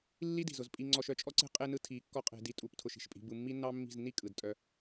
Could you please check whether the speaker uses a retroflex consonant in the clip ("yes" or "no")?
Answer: no